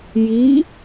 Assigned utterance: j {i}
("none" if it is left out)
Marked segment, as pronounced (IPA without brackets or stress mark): i